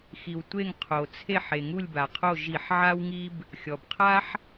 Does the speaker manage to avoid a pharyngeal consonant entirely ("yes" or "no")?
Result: no